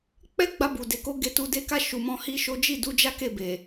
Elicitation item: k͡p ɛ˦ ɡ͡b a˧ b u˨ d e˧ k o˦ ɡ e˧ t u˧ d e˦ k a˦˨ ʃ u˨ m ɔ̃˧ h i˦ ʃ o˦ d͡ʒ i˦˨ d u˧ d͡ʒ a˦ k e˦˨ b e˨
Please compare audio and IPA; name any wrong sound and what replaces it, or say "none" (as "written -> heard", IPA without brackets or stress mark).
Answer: none